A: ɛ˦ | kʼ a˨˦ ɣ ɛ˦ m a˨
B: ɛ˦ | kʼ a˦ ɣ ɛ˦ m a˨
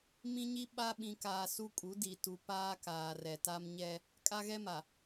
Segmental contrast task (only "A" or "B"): B